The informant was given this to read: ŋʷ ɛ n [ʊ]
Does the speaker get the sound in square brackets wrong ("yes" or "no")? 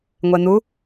yes